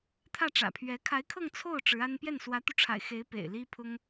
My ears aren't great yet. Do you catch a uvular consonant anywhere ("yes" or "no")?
no